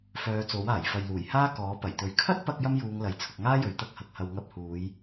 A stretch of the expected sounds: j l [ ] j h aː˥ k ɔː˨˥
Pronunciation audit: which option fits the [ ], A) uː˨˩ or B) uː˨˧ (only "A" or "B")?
A